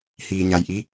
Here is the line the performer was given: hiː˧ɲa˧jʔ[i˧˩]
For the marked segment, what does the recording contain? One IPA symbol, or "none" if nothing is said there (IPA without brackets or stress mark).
i˧˥